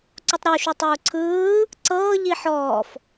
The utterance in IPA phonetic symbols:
ǀ u tˤ ɾ u ʃ u tˤ uː ǀʰ ɯː | ǀ ɤː ʎ i ħ ɔː f

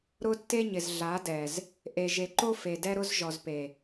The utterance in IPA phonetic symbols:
ɾ ʊ˦ tː e˦ ɲ ɪ˨ z ɮ a˨˦ d ɛ˨ z | ʔ e˨ ʒ e˨ ǃ o˦ f e˨ d ɛ˦ ɾ ʊ˦ z ʒ ɔ˨ z p e˨

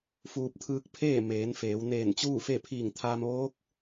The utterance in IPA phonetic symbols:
f uː˧ p̚ t̪ʰ ɯː˧˥ k̚ pʰ eː˥˨ m eː˩˧ n f eː˩˧ w n eː˧˩ n t͡ɕ uː˥˨ f e˥˨ pʰ iː˧˩ ŋ t̪ʰ aː˧ m ʋ oː˧˥ k̚

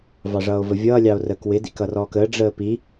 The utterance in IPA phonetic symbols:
v ɑ ʐ ʌː o̯ v ə vʲ ʌː lʲ ɑ o̯ r əː k w ɪ d ḭ k ʌ r ɔː k əː ɖ͡ʐ əː p i

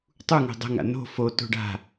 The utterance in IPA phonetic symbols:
tˤ u ŋ o̤ dˤ ə̤ ŋ a̰ n o̤ f o t o̤ ɖ a̤

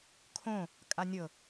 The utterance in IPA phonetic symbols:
kʰ õ | kʼ a nʲ ɤ

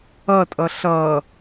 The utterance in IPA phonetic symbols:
ʌ tʼ ʌ ɬ ʌ

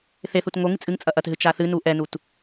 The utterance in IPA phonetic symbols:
θ e θ u t ŋ o ŋ ɨ t͡sʼ ɨ ŋ t͡sʼ ɐ ʔ ɐ t ɦ ɨ t͡ʃ a θ ɨ n u ʔ ɛ n u t

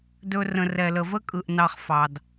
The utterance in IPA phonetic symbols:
d ɵ˧ r ə̃˨ r ɛ˨ l ə˨ v ə˦ kʼ ɯ˨ ʔ n ɑ˧ χ f ɑ˨ d

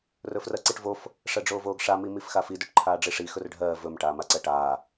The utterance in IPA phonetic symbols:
r ɵ f r ɜ ǀ i ʈ v o f | ʂ ɜ ɖ͡ʐ oː v oː ɡ ʂ a m i m i f x a f i d ɵ ʈ ǃʰ aː ɖ͡ʐ i ʂ i x ɵ r ɖʱ ɜː v ɵ m ʈ aː m a ǀ ɜ ʈ aː

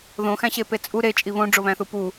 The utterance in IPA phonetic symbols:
ð õ x æ̃ ɕ e p e t͡sʼ u ɾ e t͡ʃʼ i β õ ɖ͡ʐ o β æ̃ θ u p u

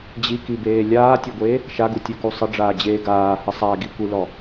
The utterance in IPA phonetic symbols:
d͡ʑ i k i b eː lʲ aː tʲ e ɡʷ eː | ʃ a ɡ u tʲ u k u sˤ ə ɖ͡ʐ aː d͡ʑ eː ɡ aː h ə sˤ a ɡ i kʷ i l ɔ

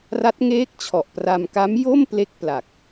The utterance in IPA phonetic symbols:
r a˦˥ t̚ ŋ eː˦˥ k̚ t͡ɕʰ ɔ˨˩ ʔ p r a˧ m k a˦˥ m j o˥˩ m p l e˦˥ k̚ p l a˨˩ k̚

